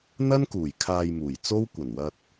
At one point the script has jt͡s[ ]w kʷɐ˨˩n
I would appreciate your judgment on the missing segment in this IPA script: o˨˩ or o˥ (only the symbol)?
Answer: o˥